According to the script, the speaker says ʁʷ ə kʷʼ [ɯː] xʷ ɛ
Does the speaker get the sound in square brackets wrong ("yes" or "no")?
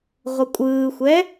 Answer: no